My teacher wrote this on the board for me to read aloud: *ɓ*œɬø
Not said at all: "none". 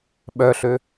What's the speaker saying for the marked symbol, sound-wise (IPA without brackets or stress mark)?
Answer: ɓ